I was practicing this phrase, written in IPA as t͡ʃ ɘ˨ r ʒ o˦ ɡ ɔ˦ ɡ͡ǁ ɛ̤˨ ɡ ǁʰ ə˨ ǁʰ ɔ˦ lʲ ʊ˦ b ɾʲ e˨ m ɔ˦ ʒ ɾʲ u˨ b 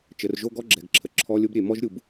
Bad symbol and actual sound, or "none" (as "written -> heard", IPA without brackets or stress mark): none